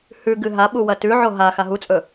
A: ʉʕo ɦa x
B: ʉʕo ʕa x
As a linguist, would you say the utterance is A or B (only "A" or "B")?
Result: A